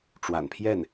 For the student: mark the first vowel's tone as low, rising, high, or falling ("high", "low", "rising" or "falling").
low